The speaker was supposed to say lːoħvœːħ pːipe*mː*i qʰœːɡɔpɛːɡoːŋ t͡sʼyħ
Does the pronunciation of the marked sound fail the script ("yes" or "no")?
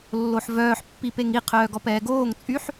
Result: yes